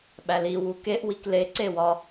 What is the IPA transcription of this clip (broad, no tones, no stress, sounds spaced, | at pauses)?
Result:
ɓ æ l i w u k e ʔ w i k l e ǀ e w ɒ